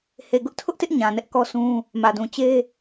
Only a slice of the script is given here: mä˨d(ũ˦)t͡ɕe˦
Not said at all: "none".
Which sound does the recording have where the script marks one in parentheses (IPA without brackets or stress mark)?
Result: ũ˨